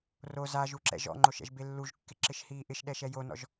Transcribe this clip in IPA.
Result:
r o z a ʒ u ǁ ɛ̰ ʒ ɔ̰ ŋ͡ǃ o ʃ ɛ̰ ʒ b e lː u ʒ kː ɪ ǁ ɪ ʃ h iː ʔ ɪ ʃ ɗ ɛ ʃ ɛ j o n ɔ̰ ʒ

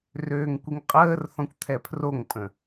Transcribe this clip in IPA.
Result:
r øː ŋ kʷ i ŋ qʼ əː r θ ɔ̃ kʷ t̪ʰ ɛ pʰ r o ŋ pʼ ə̃

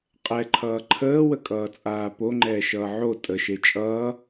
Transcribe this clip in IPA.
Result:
qʼ ɛ ǃʰ ʌː ǃʰ əː w ə kʼ ʌː t͡sʼ aː p o ŋ͡ǃ ɛː ʃ ʌː ʕ o tʼ ə ʃ e t͡ʃʼ ʌː

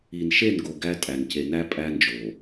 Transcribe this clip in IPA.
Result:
i˨ n ʃ e˦˨ n ɡ o˨ ɡ æ˦ tʼ æ˨ n c e˨ n æ˦ pʼ æ˦ n d͡ʒ o˨

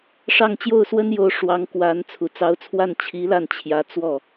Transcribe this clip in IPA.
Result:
ʂ ɑ˥˧ ŋ t͡ɕ j o˥˩ ʊ̯ s w ə˥ n j o˧˥ ʊ̯ ʂ w ɑ˧˥ ŋ k w a˧˥ n t͡sʰ u˨˩ t͡s ɑ˧˥ ʊ̯ t͡sʰ w a˥˩ n t͡ɕʰ i˧˥ l a˥˩ n t͡ɕʰ j ä˧˥ t͡s w ɔ˥˩

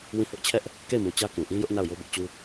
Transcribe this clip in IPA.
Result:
w ĩ˦˨ h ʊ˦ ʔ t͡ɕʰ ɛ˦ ʔ | k e˦˨ ɪ̯ m u˨ t͡ɕ ä˦ k ũ˨ ʔ ĩ˦ j ʊ˦ ʔ n a˦˨ ʊ̯ j o˦ b ʊ˦ ʔ t͡ɕ u˦

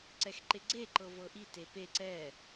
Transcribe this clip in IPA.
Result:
ǀ ɛ x ǃ e ɡ͡ǀ e ǃ ɤ v ɤ ʔ i t e p e ǀ ɛ

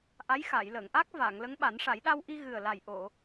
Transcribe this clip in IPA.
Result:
ʔ a˧˥ j x aː˨˩˨ j l əː˨˩˨ ŋ ʔ aː˦˥ k̚ v aː˨˩˨ ŋ l ə˧˥ ŋ ɓ a˨˩˦ n ʂ a˨˩˦ j ɗ a˧ w ʔ i˧ ɣ ɨ˨˩ ə̯ l a˨˩ j ʔ o˨˩˨

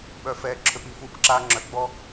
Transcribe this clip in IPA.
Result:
ɓ œ˨ f ɛː˨ ǁʰ ø˦ p i˦˨ f uː˦ p ǁ aː˦ ŋ͡ǁ œ˨ ɡ͡b ɔ˦

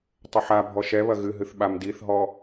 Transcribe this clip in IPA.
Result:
tˤ ɘ ħ a bʱ ɔ ʃ ɛ β ɐ ɣ ɨ ɦ ɨ θ ɓ a m d i θ ɦ ɔ

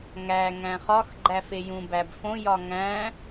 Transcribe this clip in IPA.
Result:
ŋ æ ŋ æ̃ χ ɒ x ɡ͡ǃ æ f e j ũ b æ b f õ j ɒ ŋ æ̃

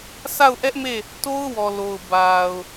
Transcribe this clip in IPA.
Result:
s a˦˨ ʊ̯ ʔ ɛ˦ ʔ m e˦˨ | t o˦ ʊ̯ w ɔ˨ l o˨ ʊ̯ b a˨ ʊ̯

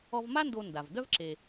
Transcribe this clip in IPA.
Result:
ɔ˧ v m a˥ n d o˧ n d a˩ v d œ˥ v ǁ e˩

